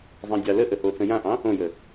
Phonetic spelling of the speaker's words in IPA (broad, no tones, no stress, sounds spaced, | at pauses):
zˤ ɑ̃ dʲ ɑ l ə ʔ ə h o t͡s ə̃ j ã ʔ ɑ̃ | õ j ə